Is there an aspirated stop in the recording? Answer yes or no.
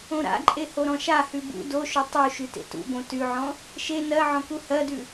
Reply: no